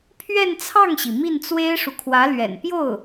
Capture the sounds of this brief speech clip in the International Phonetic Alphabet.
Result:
pʰ ɥ ɛ˥˧ n t͡sʰ ɑ˥˩ ŋ ɕ i˩ m i˥˩ n t͡s w e˥ ɪ̯ ʂ u˨ kʰ w ä˧˥ l ɥ ɛ̰˨˩ n p j o˥˩ ʊ̯

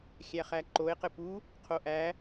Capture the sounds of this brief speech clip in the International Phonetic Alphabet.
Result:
xʲ æ χ æ ǃ o e̯ q ɘ p u | qʰ o ʔ æ

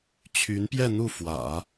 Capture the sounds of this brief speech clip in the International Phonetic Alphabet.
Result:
t͡ɕʰ y˧˥ n p j ɛ˥˧ n̪ u˥˩ f w ä̰˨˩˦

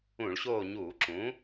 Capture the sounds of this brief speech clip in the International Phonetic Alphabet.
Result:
ũ˧˩˧ ɭ ɕ oː˦˨ ɲ uː˧˩˧ ǁ ũ˩˥

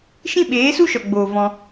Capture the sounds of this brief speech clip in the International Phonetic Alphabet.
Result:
ʃ ĩ˦ ɓ eː˨˦ s u˦ ʃ ɔ˨ ɡ͡b oː˨ v ɔ̃˧

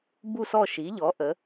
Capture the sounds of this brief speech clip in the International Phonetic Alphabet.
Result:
b u˧˩ s ɔ˧˩ ʃ i˩˧ ʎ ɔ˩˧ ʔ ə˩˧

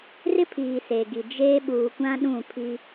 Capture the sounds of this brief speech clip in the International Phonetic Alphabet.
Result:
r ɪ˦ pʰ iː˨ s e˨ ɡ i˨ d͡ʒ eː˦ ɓ uː˨ kʷ ã˦ ɗ ũ˦˨ pʰ i˦

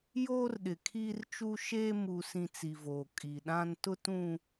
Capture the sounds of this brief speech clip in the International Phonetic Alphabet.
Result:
j oː˦ r ɗ ɪ˨ kʰ iː˦ r t͡ʃ u˦ ʃ eː˦ m u˨ s ĩ˨ t͡s i˨ v oː˨ kʼ i˨ ɗ ã˦ n t ʊ˦ t ũ˦

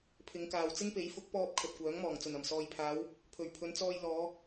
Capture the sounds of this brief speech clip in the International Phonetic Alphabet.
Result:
pʰ ɪ˨˧ ŋ k aː˨ w t͡s ɪ˥ ŋ p e˨˥ j f ʊ˨˥ k̚ p ɔː˧ p̚ kʰ ɵ˨ t̚ kʷ œː˨˥ ŋ m ɔː˨˩ ŋ t͡s ɵ˨˩ n ɐ˨˩ m s ɔː˨ j pʰ aː˨˧ w | pʰ ɵ˨˩ ɥ pʰ ɵ˨˧ n t͡s ɔː˧ j l ɔː˨˧

